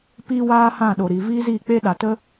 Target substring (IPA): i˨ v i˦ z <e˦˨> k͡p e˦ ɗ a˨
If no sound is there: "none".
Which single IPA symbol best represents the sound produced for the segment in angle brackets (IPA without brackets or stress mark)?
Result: i˦˨